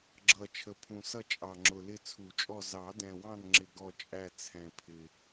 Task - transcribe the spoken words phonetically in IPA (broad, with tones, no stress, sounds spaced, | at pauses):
ɡ͡ǁ ʌ˨˩ t͡ʃʰ ə˨˩ pʰ ũ˨˩ s ʌ˦˨ t͡ʃʼ ɑ˨˩ ŋ͡ǁ ʊ˨˩ l ɪ˦˨ t͡sʰ u˨˩˦ t͡ʃʼ ɔ˦˨ z ɑ˨˩˦ d ɛ̃˨˩ w ɑ̃˦˨ n ŋ͡ǁ ɪ˨˩ ɡ ɔ˦˨ t͡ʃʼ æ˦˨ t͡sʰ ɛ̃˨˩ pʰ ɪ˨˩